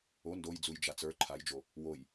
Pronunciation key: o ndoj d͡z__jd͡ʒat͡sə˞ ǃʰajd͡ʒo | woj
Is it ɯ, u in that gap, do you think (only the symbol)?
u